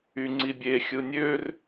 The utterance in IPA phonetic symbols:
y ŋ͡ǀ i bʲ e xʲ ɯ nʲ ø r

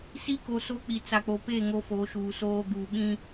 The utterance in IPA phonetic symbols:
s i˦ k o˨ s o˦ k͡p i˨ t͡s a˨ k͡p o˨ p e˦˨ ŋ o˦ f o˨˦ ʃ uː˨ s oː˦ ɡ uː˨ ɓ ĩ˦

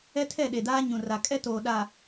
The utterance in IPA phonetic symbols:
ɛ˦ tʰ ɛ˦˨ ɗ e˨ d aː˦ ɲ ũ˨ r a˨ kʼ ɛ˦ t oː˨ ɗ a˨

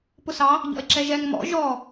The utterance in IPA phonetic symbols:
p ʊ s ɑ | ʎ ɔ̰ e̯ ǁ ɛ ʒ ɛ ŋ m ɔ̰ ʒ ɔ

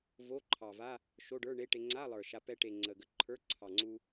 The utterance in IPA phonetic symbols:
v o˧˥˧ ǃʰ ɑ˨˩ v a˧˥˧ | ʃ o˧˥˧ ɖ ə˞˧˥˧ ɳ e˧˥˧ ʈ e˧ ŋ͡ǀ a˧˥˧ lˠ ə˞˨˩ ʃ a˧ p ɛ˧ ʈ e˨˩ ŋ͡ǀ ə˨˩ ɡ ə˧ ǃʰ ə˞˧˥˧ ǀʰ ɑ˨˩ ŋ͡ǀ u˧

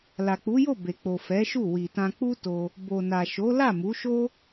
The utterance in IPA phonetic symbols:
l a˨ k͡p u˨˦ j o˦˨ b e˨ k͡p o˨ f ɛ˨˦ ʃ u˦˨ w i˨ t ã˧ k͡p u˦ t o˧ | b o˨ n a˨ ʃ o˨˦ l a˦˨ m u˨˦ ʃ o˦

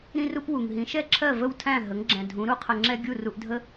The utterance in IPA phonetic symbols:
ɾ ĩ˥ r u˥ p w u˩ ŋ ɦ ĩ˩˥ ʃ ɛ˥˩ ǁʰ ɜ˥˩ v ə˥˩ w tʰ æ̃˥˩ ɦ ə˩˥ ŋ ɡ͡ǁ ɛ̃˩ dʱ ũ˩˥ ɾ u˥ qʰ ə˧ ŋ͡ǁ ɛ˥ ɡʲ u˥˩ r u˧ ʔ dʱ ə˥

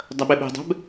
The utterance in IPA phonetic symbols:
dˤ ɐ ɓ e ɓ e̤ dˤ ɛ̤ b

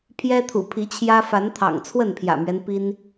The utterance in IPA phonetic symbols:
pʰ j ɛ˦ t̪ʰ ṵ˨˩ pʰ i˨˦ t͡ɕʰ j ä˦ f a˨˦ n t̪ʰ ɑ̰˨˩ ŋ t͡sʰ w ə˥˨ n pʰ j ä̰˨˩ m ɥ ɛ˦ n p i˦ n

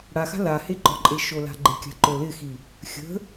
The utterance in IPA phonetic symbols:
ɽ a x a̤ l a h e ɡ͡ǃ ɔ ǃʼ e ʃ o l a̤ ɡ͡ǃ ɪ kʲ a̤ ǃ o l ɪ x i | xʲ ə̤

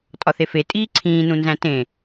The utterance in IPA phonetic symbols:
tʼ ɒ θ e f e tʼ iː ǀʰ ĩː n ũ n z æ̃ t ẽ

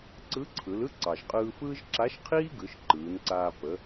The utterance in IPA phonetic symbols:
ǀ ɯ˧˥ ǀʰ ɯ˩˧ l ɯ˥ ǀ ɑ˩ ʒ qʼ ɯː˧ f ɯː˥ ʒ ǁ a˧˥ ʃ qʰ iː˥ ɡ ɯ˩˧ ʃ ǃ ɯː˩˧ n ǀ aː˧ p ə˩˧

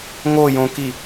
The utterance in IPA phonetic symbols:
ŋ o j õ k i

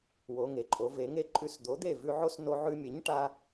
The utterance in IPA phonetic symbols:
w o˩˧ ŋ e˩ ǃʼ o˩˧ v e˩˧ ŋ e˧ ǃʼ ʉ˧ s d̪ o˩˥ d̪ e˥˩ v ʉ˧ ʕ o˦˥ s n o˧ ʕ ʉ˧ mʲ e˩˥ ɲ ʈ a˧

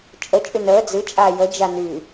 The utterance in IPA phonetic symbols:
t͡ʃʼ ə t͡ʃʼ y n əː d͡z ɨ t͡ʃʼ aː j ə d͡ʒ a n y

